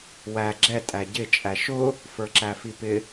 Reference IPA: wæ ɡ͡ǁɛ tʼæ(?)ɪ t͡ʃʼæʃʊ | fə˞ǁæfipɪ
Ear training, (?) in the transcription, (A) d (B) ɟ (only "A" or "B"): B